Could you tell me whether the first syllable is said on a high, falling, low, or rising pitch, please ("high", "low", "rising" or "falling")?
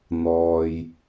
low